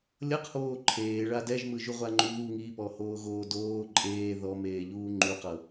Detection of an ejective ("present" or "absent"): present